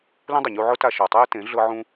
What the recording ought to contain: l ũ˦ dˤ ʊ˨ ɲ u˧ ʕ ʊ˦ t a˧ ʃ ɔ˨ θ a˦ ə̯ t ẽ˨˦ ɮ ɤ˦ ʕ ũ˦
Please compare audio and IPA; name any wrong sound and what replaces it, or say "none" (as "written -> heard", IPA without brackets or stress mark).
θ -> tˤ